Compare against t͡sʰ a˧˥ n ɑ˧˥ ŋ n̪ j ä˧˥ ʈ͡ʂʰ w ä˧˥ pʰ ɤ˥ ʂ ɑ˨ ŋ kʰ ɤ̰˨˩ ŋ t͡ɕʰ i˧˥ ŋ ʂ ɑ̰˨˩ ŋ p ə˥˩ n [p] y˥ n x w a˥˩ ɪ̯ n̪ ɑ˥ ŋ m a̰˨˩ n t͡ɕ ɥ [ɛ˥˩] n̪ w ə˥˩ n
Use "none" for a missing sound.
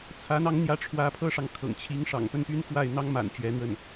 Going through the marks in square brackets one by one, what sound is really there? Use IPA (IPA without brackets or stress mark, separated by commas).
p, ɛ˧˥